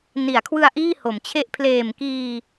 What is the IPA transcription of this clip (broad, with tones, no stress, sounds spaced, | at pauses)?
n i˩˦ a̯ kʰ w ɯ˧ a̯ ʔ iː˥˩ h o˩˦ m t͡ɕʰ e˥˩ ʔ pʰ l eː˨˩ m k iː˧